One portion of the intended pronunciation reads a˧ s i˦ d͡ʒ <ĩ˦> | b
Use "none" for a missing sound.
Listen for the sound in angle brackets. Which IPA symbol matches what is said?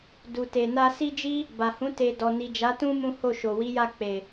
i˦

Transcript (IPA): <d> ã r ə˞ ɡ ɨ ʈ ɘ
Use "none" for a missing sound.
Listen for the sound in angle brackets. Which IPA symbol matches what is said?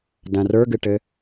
d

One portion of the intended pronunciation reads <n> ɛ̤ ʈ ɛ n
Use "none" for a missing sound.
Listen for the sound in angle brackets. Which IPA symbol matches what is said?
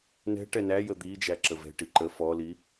n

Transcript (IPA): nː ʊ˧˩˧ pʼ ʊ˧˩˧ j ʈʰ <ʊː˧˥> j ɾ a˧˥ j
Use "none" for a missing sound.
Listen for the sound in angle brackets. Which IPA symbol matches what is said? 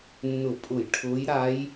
ʊː˧˥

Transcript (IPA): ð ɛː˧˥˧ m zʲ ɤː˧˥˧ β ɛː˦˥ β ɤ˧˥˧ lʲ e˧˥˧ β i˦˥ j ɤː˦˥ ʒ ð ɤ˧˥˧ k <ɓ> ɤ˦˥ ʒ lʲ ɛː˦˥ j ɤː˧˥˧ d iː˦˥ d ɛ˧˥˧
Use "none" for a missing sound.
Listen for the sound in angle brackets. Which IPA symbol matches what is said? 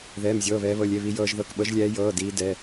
ɓ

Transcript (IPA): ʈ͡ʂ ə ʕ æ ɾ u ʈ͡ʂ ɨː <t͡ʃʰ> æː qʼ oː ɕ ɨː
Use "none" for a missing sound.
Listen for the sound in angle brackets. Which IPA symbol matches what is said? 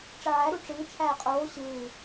t͡ʃʰ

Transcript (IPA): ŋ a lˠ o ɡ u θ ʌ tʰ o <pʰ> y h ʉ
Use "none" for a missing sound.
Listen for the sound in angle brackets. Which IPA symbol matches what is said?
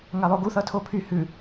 pʰ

